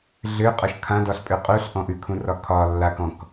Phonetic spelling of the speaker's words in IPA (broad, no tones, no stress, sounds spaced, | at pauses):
ɮ ø qʼ ɒ ʃ kʰ ã d ɒ ɬ pʼ ø qʼ u ɬ ʔ ɔ̃ ʔ ʉ kʰ ũ r ɒ kʰ ɒ lː a k ɔ̃ k